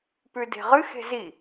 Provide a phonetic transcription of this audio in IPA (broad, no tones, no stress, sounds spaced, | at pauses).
p ʉ d e̤ ʁ ɨ x e̤ z i